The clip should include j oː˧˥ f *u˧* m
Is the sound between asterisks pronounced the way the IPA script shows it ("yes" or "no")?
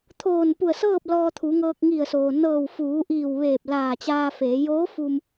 yes